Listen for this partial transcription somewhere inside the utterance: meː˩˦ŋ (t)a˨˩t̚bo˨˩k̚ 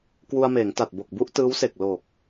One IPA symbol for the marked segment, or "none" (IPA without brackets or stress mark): t